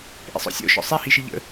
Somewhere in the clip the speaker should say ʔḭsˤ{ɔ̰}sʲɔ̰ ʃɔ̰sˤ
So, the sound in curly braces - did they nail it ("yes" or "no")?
yes